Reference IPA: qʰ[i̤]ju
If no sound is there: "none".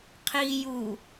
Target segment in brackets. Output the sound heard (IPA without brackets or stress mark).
i